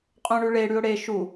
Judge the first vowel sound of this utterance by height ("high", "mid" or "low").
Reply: mid